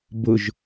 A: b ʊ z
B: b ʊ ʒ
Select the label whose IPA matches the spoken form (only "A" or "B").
B